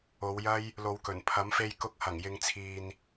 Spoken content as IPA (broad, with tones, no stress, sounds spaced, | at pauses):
o˨˧ w j ɐ˥ j | l o˨ w k ɵ˨˩ n pʰ ɐ˨˥ m f e˧ j k ʊ˨˥ k̚ h ɐ˨˩ ŋ j ɪ˨ ŋ t͡sʰ iː˨ n